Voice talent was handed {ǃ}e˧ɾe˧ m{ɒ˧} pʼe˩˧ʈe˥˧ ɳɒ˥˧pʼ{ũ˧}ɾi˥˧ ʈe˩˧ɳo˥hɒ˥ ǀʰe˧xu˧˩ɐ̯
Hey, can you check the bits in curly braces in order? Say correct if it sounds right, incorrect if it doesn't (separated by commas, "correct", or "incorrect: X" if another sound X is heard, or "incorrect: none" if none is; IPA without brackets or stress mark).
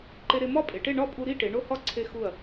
correct, incorrect: ɒ˥˧, incorrect: u˧